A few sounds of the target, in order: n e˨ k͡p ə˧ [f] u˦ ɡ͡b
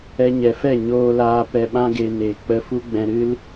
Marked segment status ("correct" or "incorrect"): correct